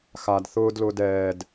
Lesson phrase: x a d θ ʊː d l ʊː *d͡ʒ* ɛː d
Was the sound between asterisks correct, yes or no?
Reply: no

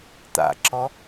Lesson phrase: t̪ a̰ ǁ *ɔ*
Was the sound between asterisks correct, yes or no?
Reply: yes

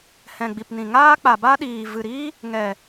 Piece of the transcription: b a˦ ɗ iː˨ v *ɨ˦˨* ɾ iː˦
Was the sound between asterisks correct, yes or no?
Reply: no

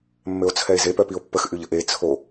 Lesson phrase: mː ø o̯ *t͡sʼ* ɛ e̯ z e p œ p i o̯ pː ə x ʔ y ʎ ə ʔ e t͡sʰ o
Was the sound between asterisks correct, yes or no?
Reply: no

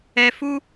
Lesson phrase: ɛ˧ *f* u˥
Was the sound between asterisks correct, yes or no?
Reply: yes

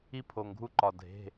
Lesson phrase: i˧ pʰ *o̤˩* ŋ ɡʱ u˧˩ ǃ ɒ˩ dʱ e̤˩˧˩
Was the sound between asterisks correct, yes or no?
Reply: no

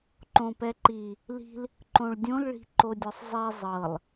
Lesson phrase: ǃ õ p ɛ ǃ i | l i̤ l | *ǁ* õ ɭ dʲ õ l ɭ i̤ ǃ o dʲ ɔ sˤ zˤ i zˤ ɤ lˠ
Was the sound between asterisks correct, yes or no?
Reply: no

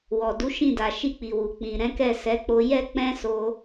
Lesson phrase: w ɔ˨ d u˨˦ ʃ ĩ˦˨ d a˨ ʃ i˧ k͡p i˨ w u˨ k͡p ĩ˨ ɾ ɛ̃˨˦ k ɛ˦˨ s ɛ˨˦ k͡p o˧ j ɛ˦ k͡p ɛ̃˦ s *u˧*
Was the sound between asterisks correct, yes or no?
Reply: no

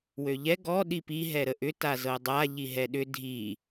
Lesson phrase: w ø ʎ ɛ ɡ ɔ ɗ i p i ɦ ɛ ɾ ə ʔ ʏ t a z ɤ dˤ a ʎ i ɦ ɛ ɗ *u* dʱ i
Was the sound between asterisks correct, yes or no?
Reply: no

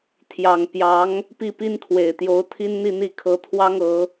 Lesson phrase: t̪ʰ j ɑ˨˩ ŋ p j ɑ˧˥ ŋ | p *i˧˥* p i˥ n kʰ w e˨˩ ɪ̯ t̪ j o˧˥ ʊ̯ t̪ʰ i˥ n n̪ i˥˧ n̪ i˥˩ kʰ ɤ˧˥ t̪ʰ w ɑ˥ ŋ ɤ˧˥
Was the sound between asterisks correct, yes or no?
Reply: no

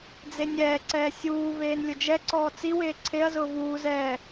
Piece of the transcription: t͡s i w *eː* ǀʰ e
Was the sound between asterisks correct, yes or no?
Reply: yes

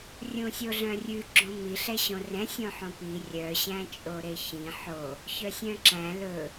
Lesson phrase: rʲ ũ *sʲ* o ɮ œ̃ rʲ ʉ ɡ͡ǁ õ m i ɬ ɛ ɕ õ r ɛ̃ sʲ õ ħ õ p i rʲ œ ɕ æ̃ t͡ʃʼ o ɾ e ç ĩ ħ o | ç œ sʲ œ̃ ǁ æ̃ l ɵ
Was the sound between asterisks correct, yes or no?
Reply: yes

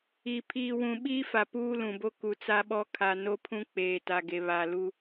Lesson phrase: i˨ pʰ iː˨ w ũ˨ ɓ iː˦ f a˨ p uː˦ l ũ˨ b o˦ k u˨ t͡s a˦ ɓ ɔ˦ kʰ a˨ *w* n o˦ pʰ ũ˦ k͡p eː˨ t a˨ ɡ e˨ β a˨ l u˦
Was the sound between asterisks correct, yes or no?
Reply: no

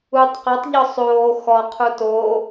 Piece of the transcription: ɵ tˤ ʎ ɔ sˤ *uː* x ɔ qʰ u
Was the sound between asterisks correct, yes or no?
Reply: no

